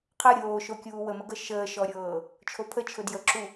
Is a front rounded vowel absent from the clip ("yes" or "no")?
yes